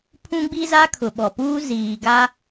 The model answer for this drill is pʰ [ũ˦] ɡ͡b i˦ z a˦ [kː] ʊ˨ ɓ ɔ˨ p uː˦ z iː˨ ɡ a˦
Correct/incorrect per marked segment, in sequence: correct, incorrect

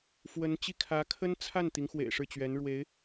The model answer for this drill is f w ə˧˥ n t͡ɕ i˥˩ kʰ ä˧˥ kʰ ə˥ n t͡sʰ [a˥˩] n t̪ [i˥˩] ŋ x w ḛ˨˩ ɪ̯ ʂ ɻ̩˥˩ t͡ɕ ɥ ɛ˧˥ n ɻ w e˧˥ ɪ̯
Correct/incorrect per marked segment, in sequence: correct, incorrect

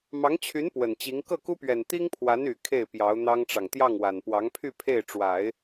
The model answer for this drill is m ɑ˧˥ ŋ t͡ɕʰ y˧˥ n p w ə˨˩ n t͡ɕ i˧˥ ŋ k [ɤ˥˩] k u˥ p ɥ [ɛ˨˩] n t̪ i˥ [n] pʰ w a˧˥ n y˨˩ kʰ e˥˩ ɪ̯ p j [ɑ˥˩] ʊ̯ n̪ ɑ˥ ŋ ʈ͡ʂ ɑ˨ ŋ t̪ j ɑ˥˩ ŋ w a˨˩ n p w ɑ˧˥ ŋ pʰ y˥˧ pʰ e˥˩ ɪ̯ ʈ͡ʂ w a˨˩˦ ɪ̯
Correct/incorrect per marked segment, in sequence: correct, correct, incorrect, incorrect

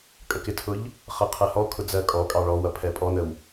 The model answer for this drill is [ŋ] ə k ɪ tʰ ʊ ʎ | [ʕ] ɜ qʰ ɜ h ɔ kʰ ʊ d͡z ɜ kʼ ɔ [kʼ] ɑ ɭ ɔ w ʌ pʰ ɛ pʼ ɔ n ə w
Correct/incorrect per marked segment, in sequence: incorrect, incorrect, correct

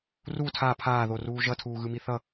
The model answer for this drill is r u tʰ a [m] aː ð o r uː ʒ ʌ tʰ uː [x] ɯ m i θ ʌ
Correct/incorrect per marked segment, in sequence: incorrect, incorrect

